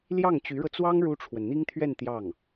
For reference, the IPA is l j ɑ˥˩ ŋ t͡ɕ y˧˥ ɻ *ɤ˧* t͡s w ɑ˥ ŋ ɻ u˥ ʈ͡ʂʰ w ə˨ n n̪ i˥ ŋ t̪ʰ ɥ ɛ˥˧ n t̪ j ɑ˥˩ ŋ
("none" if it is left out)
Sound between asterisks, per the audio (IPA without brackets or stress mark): ɤ˧